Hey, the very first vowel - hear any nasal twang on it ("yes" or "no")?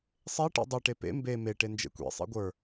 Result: no